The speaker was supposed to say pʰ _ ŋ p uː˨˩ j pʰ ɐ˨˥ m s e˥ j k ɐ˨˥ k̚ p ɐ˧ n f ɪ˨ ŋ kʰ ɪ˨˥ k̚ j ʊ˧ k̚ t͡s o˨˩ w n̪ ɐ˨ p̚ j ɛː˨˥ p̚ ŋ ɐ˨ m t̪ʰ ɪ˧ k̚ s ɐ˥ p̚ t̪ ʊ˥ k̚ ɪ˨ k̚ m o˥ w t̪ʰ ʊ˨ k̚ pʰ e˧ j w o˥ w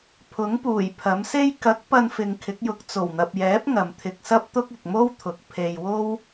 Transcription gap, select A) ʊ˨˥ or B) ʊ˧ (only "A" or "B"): A